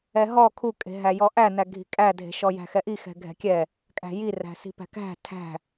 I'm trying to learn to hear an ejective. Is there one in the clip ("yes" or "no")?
yes